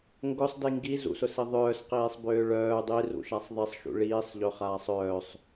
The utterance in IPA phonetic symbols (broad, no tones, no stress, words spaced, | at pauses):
ŋɡʊsˤdi ŋɡizṵsʊsi ðˤœːsqiːsˤbøː ɭœː dˤirṵʃasˤ ðˤisˤʃṵ ɭiːsˤʎøχaːsˤ œːsˤ